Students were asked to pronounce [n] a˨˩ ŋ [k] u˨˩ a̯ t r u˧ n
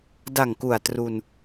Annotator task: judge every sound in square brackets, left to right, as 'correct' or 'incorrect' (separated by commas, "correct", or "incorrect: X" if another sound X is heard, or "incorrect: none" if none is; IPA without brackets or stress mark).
incorrect: d, correct